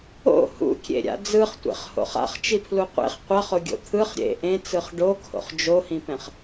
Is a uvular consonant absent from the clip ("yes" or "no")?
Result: no